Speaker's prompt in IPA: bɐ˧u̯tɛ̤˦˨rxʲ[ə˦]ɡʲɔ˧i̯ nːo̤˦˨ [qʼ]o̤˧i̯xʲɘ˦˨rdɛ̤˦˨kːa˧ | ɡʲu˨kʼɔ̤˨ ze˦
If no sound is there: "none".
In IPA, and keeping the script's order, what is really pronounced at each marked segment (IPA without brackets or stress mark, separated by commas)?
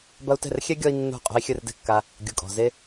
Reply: ɛ˦, qʼ